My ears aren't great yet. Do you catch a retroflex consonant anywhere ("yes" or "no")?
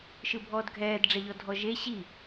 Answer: yes